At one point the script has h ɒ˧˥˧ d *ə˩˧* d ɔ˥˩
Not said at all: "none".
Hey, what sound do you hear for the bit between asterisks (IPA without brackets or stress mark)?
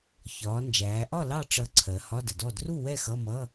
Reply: ə˩˧